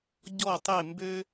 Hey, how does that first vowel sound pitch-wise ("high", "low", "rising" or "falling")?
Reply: falling